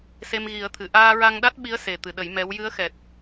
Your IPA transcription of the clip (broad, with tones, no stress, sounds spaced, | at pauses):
s e˧ m ɣ i˨˩˦ ə̯ t̪ʰ ɨ˨˩˨ ʔ aː˧ ɹ a˧ ŋ ɗ a˦˥ t̚ ɓ i˧˥ ə̯ s e˨˩ t̪ ɨ˨˩˨ ɗ ə˨˩˦ j m ɛ˧˥ w j ɨ˧˥ ə̯ x ɛ˨˩ t̚